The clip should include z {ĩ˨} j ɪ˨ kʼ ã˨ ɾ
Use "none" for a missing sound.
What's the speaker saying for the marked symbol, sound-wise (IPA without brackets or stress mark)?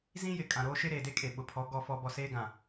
ĩ˦